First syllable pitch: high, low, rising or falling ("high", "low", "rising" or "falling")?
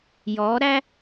rising